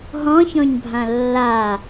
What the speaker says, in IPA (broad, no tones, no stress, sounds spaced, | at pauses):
ɦ ɔ̃ ç ɔ̃ ɲ bʱ ã lː a